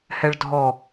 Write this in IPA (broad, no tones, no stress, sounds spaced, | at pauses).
h ɛ ɭ dʱ ɔ